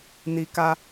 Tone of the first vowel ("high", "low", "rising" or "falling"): low